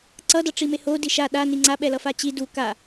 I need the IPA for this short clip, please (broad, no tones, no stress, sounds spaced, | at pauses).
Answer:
ǀ ʌ d ʌ ʈ͡ʂ i m e h o d i ʃ a ɗ a n i ŋ͡ǀ a ɓ ɛ l ʌ f a t͡ɕ i d u k a